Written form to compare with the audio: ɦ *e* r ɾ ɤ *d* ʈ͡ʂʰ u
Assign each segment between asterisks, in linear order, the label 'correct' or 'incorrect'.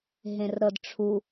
incorrect, correct

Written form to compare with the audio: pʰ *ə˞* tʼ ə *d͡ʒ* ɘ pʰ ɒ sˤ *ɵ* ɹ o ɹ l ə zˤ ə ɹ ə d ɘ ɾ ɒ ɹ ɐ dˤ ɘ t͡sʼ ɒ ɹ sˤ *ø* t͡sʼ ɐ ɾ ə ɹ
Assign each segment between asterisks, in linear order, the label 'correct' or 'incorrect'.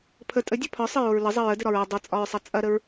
incorrect, incorrect, incorrect, incorrect

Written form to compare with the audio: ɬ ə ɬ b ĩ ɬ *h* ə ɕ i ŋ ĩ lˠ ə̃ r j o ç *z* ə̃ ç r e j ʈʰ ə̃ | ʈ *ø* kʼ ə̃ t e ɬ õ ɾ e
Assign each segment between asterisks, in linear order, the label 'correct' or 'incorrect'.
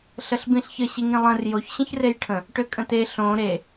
incorrect, incorrect, correct

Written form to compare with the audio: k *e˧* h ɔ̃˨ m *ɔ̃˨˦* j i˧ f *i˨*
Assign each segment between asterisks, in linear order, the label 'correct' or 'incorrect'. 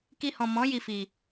incorrect, correct, correct

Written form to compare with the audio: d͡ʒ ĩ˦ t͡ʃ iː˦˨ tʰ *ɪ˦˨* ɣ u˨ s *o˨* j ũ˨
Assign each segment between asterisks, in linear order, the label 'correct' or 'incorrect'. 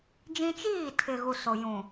incorrect, correct

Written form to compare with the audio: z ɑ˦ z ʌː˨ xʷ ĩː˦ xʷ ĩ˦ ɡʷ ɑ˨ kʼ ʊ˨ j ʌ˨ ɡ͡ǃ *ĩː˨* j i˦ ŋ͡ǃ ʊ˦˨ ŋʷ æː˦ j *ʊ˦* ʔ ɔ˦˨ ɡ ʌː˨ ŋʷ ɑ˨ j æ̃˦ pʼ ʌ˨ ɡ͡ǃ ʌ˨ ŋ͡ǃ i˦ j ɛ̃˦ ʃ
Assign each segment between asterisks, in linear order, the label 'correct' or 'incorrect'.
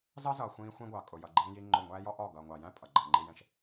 incorrect, incorrect

